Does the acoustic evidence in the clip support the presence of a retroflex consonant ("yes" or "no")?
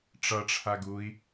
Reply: yes